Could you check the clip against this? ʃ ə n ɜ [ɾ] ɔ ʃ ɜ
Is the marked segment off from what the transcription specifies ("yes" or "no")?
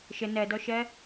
yes